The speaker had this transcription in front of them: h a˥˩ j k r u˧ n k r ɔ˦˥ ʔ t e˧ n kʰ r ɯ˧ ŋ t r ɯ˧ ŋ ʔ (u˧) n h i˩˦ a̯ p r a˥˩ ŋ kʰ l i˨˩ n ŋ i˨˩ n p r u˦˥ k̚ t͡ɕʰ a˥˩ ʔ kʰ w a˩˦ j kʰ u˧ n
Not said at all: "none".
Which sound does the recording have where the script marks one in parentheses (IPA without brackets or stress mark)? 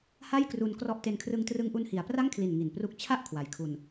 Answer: u˧